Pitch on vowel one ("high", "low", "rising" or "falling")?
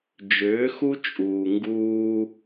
rising